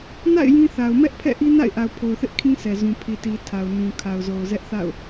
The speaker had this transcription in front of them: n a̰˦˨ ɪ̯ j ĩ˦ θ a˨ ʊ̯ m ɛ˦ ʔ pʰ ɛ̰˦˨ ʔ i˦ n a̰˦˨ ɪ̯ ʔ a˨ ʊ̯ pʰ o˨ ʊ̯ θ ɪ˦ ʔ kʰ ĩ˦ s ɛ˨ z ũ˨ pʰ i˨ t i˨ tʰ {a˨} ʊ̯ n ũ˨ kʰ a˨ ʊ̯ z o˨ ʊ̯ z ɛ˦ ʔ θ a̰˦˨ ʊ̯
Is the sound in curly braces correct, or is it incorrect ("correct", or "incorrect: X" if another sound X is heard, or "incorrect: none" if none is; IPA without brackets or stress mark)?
correct